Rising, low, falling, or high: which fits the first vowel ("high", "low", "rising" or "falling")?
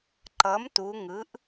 rising